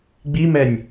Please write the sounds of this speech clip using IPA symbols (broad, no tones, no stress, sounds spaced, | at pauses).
ɡ͡b i m ɛ nʲ